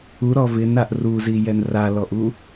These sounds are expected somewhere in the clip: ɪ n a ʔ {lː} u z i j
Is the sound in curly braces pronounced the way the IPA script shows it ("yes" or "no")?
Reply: no